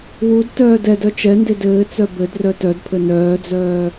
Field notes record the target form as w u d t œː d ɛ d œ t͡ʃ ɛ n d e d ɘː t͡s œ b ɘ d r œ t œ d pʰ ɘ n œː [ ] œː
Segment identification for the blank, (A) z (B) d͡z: B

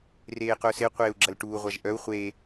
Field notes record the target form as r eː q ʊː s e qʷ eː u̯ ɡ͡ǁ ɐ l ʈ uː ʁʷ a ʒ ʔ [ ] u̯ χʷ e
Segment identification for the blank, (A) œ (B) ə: A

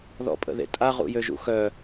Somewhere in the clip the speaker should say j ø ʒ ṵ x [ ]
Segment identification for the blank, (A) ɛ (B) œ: B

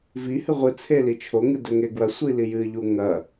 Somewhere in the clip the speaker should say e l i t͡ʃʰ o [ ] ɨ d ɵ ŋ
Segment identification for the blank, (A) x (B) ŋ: B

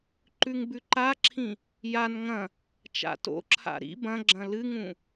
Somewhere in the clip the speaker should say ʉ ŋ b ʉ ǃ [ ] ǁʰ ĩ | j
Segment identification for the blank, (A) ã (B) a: B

